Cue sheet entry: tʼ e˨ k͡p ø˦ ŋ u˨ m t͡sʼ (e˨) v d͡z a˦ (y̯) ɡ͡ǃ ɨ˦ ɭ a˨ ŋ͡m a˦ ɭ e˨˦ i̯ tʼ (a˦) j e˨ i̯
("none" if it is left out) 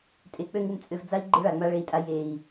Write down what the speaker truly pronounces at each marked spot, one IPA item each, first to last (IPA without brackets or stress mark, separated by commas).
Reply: ø˨, i̯, a˦